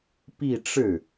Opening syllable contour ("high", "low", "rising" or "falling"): falling